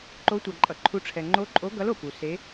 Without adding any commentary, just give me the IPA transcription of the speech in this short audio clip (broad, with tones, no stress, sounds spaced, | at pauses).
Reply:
ǃ o˧˥ tʷ a˨ ǃʼ ʌ˨ ǃʰ u˧˥ ʈ͡ʂʰ ɛ˨ ŋ͡ǃ o˧˥ ǃʼ o˧˥ ɡ ʌ˧˥ l o˨ p u˨ s e˧˥